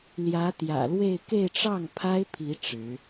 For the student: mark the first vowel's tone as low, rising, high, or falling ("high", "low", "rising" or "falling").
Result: rising